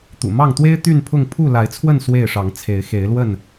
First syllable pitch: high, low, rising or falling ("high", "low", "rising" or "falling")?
low